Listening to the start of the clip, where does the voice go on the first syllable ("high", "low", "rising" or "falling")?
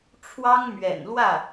high